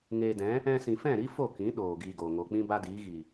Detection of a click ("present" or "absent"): absent